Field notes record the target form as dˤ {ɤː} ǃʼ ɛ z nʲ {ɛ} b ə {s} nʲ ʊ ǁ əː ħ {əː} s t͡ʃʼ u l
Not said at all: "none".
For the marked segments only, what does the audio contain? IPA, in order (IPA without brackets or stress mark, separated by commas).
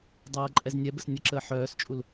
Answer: ɤː, ɛ, s, œː